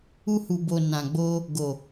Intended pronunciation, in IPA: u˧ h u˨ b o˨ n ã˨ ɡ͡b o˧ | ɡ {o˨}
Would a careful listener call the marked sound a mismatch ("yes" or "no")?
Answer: no